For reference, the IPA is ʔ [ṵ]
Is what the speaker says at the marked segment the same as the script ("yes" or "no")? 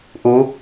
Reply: no